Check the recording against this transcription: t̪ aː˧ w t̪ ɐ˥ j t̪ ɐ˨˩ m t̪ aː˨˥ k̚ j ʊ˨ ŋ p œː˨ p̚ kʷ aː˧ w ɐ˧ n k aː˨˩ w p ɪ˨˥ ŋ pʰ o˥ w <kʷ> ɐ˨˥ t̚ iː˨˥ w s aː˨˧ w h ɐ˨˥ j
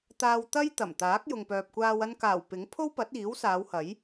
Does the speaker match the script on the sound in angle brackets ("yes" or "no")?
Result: no